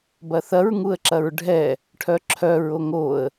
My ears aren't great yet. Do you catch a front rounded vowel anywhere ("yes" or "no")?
yes